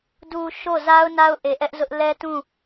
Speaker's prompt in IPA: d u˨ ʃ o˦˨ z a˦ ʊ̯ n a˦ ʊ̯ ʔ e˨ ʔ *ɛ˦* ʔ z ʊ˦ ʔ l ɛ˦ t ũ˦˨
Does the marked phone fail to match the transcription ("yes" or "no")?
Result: no